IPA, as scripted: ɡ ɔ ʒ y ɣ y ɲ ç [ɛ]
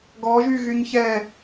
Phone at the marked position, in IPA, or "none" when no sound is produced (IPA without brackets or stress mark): ɛ